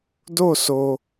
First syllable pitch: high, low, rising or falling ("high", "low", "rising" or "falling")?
falling